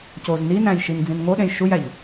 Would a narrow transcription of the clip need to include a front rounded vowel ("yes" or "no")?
no